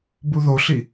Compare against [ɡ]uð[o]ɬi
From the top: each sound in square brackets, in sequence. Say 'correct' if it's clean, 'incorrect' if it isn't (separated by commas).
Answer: incorrect, correct